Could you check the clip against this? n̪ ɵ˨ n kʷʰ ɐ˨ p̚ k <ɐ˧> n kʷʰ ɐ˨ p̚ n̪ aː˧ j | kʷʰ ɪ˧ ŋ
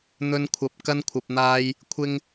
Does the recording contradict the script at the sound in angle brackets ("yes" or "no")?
no